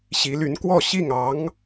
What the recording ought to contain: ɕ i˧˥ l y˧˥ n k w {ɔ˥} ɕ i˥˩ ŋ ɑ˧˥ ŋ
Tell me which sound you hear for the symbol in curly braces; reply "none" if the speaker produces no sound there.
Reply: ɔ˥˧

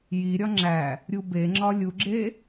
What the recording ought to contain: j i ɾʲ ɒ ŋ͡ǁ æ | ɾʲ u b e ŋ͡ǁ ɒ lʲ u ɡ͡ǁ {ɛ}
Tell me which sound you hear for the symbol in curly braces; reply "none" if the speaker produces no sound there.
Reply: e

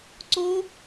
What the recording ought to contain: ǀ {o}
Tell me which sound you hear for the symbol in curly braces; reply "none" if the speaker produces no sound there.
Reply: o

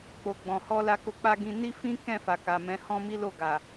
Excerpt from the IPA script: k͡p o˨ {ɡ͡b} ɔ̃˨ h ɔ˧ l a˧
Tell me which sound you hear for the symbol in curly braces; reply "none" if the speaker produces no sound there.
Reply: ɡ͡b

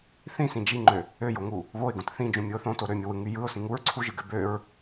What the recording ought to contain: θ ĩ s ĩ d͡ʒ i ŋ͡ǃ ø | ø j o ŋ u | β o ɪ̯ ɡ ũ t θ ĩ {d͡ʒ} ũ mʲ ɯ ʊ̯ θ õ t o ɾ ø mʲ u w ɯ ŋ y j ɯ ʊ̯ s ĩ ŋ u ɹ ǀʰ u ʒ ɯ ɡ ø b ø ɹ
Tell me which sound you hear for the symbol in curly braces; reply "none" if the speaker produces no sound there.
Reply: d͡ʒ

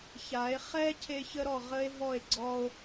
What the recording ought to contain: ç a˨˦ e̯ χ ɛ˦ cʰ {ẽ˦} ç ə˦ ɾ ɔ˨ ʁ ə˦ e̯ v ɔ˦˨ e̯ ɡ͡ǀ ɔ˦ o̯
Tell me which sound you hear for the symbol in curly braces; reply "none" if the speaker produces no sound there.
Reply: e˦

